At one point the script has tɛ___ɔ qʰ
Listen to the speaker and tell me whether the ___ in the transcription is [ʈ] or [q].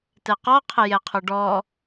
q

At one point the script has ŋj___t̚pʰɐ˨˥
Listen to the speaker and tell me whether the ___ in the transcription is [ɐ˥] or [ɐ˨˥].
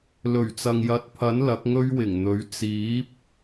ɐ˨˥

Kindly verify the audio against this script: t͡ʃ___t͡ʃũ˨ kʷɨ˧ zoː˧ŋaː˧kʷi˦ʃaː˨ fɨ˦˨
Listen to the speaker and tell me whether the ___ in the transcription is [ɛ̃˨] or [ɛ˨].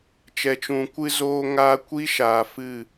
ɛ˨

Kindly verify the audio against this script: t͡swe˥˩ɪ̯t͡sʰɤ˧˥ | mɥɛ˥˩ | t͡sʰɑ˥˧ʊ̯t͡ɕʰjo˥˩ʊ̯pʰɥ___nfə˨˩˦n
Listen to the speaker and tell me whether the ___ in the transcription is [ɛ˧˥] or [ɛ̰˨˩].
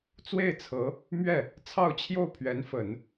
ɛ˧˥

